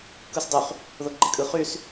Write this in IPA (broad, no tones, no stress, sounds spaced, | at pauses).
k ɯ s dˤ y χ | ð o ɡ͡ǃ e kʼ ɯ χ y s